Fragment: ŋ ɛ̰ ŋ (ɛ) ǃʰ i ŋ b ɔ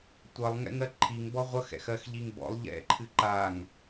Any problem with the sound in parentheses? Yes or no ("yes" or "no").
yes